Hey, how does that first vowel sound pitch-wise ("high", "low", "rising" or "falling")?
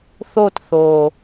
falling